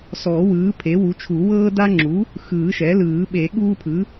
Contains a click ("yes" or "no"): yes